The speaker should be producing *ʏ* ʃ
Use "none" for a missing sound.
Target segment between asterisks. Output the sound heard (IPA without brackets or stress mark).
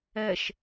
ɛ